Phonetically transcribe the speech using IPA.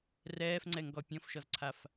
r ɛː f ŋ͡ǀ ɛ ŋ ɡ ɔ pʲ ɔ̃ f ʃ ɔ z ǀʰ a f

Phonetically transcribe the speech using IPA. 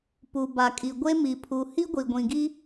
p u˨ b a˨ kʼ i˨ ɡʷ e˦ m i˨ pʰ u˨ h i˦ ɡʷ i˨ ɡʷ ĩ˨ ɡ i˦

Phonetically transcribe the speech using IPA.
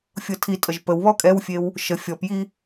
fʲ ɤ tʰ i tʼ ə ʒ p ə w β ɔ kʼ ɛ w fʲ e w | ʃ ə fʲ ɔ p j i

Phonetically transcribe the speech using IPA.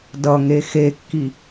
d ʌ ŋ e x e kː i

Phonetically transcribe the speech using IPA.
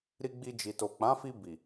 ɾ i˧ ɡ͡b i˧ d͡ʒ i˨ t o˨ k͡p ã˨˦ f i˧ b i˨

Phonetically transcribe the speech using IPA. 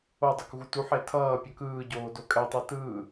o dˤ o k ɣ u t u ħ e tʰ ʌː pʲ ʌ k ɯː ɟ oː d o kʼ ɛ tˤ ɯ t ɯː

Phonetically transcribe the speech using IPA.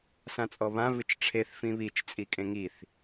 s ã t͡sʼ ɔ β ã v ɨ t͡ʃ ʈ͡ʂʰ e θ f ĩ β i t͡ʃ t͡sʼ i kʼ ẽ ŋ i θ

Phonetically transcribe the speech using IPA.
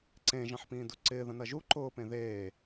ǀ ẽ ʒ ɐ̃ ħ p ĩː d u ǀ ɪː ð ɐ̃ n ɐ ʒ u ǃ ʊː p ẽ ð eː

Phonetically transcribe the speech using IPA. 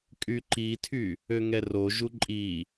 kʼ y ǃ i tʰ y | ø ŋ ɛ r o ʒ u ǃʼ i

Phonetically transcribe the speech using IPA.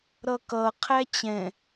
ɾ ʌ k ʌ qʰ æ t͡ɕ ɛ̃

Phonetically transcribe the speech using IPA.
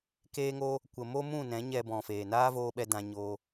k eː˦ ŋ o˦ | kʷ ə˧ m o˦ m ũ˦˨ n ɛ̃˨˦ ɲ ɛ˧ b ɔ̃˨ f eː˨ n aː˦ v oː˧ ɓ ɛ˧ d ã˧ ɲ o˧

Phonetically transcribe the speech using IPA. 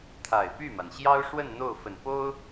t̪ʰ a˨˩ ɪ̯ p y˥˩ m a˩ n ɕ j ɑ˥ ʊ̯ ʂ w ə˥˧ n n̪ o˥˩ ʊ̯ f ə˨˩ n p o˥ ʊ̯

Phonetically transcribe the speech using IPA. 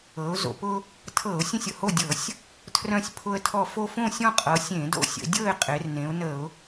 ɤ˩˧ ʊ̯ z o̰˩ p ʊ˦ | tʰ ɤ˧˩˧ ʊ̯ sʲ ə̃˥˨ sʲ ʊ˩ h o˥˨ dʲ ɤ˧˩˧ sʲ | tʰ r œ̃˦ sʲ pʰ ʊ˦ ə̯ tʰ ɔ˦ f o˦ f õ˥˨ sʲ ɔ̃˥˨ qʼ ɤ˩˧ sʲ ẽ˧˩˧ d o̰˦ sʲ ə̰˩˧ dʲ ɤ˥˨ ɪ̯ qʼ e˩˧ r n ẽ˩˧ ʊ̯ n ə˧˩˧ ʊ̯

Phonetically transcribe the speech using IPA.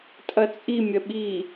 tʼ ɐ t͡sʼ i mʲ ɐ ɓ i

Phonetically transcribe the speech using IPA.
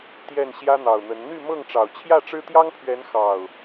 t̪ j ɛ˥˨ n ɕ j ä˦ n̪ ɑ˨˩ ʊ̯ n̪ ə˨˦ n n̪ y˥˨ m ɤ˥˨ ŋ ʈ͡ʂ ɑ˨˩ ʊ̯ t͡ɕʰ j ä˥˨ ʈ͡ʂ ɻ̩˦ t̪ j ɑ˦ ŋ pʰ ɥ ɛ˨˦ n x ɑ˨˩ ʊ̯

